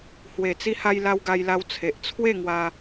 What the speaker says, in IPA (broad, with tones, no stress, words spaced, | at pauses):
hwe˨˩t͡si˧ha˧j la˧wɡa˧jla˧w t͡sʰe˨ʔt͡sʰwe˥˧ŋwa˧